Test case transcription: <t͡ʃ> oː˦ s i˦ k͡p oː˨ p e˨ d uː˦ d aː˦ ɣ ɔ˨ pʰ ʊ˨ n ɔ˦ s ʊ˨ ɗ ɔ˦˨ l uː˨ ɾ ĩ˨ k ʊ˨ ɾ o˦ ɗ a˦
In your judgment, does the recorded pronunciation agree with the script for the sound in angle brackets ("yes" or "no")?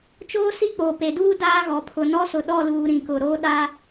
yes